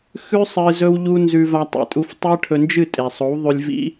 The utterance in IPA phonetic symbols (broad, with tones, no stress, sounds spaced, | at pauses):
x ʉ˦ sˤ ɨ˧ z ɵ˦ w ʎ u˦ n z ʉ˧ v a˧ tˤ ḛ˨ tʼ u˧ f tˤ e˦ ʈʰ ɵ˧ n d͡ʒ ɨ˦˨ tʼ e˨ sˤ o˨˦ w ðˤ ʉ˧ lʲ v ḭ˦